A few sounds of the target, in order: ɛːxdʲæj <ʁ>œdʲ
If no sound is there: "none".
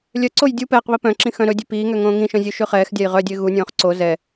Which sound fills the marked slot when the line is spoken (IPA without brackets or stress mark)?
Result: ʁ